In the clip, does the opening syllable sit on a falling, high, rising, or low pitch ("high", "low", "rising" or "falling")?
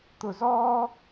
low